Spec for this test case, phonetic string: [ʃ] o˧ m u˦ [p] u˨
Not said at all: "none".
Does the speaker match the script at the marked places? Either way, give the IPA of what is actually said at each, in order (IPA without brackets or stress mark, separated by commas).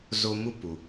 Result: z, p